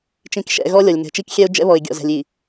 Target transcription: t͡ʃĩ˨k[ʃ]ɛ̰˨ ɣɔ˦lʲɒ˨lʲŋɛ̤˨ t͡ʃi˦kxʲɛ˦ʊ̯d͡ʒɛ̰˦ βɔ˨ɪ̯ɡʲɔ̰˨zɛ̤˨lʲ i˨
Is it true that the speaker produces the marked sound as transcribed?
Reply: yes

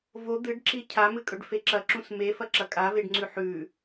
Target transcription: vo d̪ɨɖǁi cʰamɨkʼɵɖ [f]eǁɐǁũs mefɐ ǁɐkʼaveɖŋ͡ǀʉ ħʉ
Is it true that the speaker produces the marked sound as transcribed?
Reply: yes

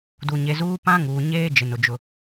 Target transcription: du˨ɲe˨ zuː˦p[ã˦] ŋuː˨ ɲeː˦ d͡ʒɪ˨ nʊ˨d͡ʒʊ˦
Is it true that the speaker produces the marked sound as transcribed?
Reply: yes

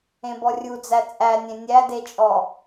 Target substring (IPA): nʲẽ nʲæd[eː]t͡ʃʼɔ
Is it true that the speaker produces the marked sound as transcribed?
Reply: no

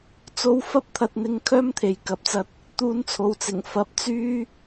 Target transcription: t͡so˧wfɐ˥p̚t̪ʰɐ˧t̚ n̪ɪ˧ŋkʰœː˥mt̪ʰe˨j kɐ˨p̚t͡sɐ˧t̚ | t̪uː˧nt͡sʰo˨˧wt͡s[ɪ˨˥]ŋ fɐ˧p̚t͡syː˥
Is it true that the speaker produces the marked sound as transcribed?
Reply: no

